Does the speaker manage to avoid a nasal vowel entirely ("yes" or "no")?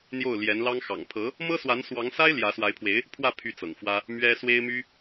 yes